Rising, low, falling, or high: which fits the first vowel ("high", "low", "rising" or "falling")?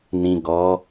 low